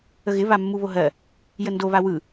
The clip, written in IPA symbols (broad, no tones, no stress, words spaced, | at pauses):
əɣɪβamːu βoɦɜ | jəndoβa wɯ